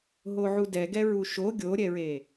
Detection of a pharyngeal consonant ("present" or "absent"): present